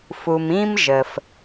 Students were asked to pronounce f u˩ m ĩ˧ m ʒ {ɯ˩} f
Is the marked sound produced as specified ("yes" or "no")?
no